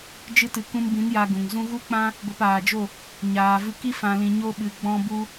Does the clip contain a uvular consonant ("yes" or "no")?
no